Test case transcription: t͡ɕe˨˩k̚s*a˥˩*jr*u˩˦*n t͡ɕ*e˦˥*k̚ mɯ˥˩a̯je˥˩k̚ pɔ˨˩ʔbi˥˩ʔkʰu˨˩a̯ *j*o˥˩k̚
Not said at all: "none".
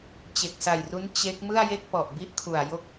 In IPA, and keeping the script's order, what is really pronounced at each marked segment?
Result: a˨˩, u˦˥, e˦˥, j

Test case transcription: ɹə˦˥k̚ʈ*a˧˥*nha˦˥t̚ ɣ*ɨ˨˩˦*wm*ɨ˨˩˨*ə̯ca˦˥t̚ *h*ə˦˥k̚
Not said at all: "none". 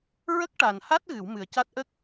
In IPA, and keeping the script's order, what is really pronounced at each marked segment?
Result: a˨˩, ɨ˨˩˦, ɨ˨˩, ʔ

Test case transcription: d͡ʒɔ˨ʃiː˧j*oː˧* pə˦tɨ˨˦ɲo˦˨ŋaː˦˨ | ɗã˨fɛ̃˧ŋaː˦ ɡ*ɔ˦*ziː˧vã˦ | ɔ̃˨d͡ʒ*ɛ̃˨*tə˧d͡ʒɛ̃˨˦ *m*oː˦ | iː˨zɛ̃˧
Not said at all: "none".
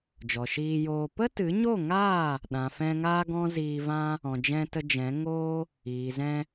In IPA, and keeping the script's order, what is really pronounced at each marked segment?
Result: oː˧, ɔ̃˦, ɛ̃˧, ŋ

